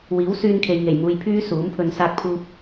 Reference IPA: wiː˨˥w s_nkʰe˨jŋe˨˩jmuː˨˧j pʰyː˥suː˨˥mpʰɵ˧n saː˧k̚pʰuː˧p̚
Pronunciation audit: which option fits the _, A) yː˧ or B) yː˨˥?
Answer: A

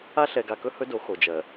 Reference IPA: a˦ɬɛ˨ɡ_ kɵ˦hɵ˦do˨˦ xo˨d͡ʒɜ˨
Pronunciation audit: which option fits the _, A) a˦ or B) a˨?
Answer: B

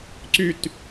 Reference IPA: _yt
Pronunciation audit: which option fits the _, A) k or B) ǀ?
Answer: B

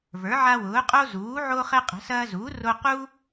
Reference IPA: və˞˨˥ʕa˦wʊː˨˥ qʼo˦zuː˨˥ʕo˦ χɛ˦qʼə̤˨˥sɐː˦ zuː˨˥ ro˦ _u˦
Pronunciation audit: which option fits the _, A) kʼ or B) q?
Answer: B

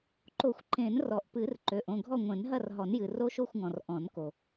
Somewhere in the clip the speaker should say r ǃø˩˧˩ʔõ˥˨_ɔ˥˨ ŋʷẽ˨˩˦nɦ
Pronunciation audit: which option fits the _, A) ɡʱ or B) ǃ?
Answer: A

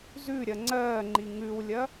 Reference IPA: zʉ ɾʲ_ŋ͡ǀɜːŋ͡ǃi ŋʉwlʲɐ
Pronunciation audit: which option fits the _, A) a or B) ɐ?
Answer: B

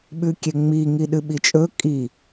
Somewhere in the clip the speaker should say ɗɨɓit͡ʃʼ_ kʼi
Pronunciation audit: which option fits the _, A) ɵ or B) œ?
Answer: A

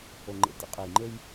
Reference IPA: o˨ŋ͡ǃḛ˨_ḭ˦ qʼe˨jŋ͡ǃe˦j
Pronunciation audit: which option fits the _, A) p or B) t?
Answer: B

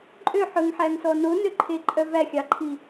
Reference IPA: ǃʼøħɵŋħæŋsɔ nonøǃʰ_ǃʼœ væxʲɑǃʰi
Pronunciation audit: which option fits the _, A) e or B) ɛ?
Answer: A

